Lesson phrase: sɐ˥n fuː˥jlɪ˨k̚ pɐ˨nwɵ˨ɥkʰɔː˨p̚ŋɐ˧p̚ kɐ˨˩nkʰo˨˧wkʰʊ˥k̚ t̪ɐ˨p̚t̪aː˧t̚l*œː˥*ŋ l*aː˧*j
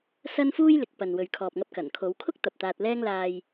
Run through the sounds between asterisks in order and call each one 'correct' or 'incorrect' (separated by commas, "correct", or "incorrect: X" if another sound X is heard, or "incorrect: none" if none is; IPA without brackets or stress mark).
incorrect: ɛː˥, correct